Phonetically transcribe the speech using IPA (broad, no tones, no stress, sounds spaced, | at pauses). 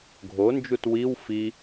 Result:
ɡʱ o n d͡ʒ u t w i w f i